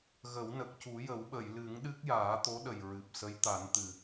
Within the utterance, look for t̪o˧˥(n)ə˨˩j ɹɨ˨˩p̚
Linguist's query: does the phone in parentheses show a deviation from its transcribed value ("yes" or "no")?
yes